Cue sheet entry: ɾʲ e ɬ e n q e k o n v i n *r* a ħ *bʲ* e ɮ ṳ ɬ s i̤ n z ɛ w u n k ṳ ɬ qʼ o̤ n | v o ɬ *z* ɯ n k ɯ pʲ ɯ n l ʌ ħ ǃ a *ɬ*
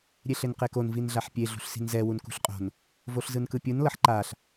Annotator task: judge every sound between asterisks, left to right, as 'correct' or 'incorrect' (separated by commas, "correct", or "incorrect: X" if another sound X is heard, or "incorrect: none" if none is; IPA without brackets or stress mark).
incorrect: ɮ, incorrect: pʲ, correct, correct